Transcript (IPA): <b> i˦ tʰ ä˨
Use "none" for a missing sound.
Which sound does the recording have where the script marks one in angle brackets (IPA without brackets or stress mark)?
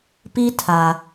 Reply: p